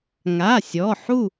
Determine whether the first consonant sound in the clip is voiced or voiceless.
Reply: voiced